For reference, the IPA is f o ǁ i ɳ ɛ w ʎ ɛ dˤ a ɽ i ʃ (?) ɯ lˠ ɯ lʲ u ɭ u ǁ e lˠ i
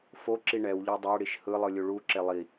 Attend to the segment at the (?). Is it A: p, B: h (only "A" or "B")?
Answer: B